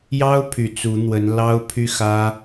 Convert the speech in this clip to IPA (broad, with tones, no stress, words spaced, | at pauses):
jɑ˥ʊ̯ pʰy˨˩t͡su˧˥n̪wə˧˥n lɑ˥ʊ̯pʰy˥xä˥